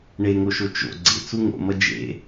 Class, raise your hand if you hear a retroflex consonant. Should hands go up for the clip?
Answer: yes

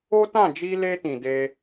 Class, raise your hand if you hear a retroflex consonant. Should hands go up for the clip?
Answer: no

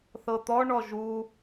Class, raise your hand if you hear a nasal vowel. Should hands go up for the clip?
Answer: no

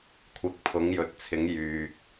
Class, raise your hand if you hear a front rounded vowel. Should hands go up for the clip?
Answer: yes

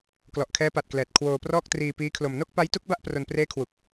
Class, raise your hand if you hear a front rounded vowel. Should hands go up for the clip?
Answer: no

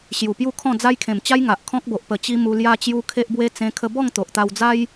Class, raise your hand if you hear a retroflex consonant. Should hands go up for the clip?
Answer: no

